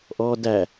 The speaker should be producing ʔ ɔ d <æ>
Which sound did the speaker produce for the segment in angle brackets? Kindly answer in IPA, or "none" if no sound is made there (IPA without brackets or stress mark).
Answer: æ